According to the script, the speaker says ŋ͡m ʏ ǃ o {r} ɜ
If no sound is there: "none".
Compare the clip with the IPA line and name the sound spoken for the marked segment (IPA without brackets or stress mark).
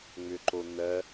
n̪